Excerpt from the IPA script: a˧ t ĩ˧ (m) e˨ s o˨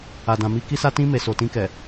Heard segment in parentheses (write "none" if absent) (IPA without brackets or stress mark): m